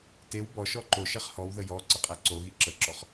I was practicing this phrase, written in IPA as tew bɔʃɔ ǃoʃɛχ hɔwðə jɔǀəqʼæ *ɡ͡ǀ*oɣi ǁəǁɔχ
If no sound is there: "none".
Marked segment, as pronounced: ǀ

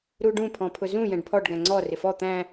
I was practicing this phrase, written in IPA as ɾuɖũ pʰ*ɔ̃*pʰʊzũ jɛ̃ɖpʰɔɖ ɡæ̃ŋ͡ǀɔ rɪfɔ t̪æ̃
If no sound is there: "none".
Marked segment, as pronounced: ɔ̃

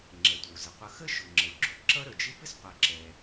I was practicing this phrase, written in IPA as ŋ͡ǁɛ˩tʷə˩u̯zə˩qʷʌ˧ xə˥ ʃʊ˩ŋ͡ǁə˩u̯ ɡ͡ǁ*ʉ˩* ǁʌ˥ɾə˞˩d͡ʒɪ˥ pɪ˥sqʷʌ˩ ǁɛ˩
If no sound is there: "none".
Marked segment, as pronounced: ʊ˩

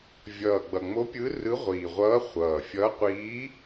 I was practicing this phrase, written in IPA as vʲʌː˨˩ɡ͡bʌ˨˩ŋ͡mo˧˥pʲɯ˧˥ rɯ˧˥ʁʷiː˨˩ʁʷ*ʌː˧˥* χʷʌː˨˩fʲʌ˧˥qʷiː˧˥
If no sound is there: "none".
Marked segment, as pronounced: ʌː˧˥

